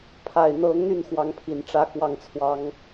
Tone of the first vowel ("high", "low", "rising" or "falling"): low